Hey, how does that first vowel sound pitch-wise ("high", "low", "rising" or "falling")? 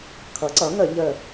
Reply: rising